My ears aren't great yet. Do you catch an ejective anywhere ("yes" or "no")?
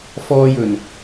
no